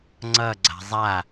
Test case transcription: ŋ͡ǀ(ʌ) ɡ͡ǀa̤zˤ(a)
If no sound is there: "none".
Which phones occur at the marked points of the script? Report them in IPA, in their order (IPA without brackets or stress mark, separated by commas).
ʌ, a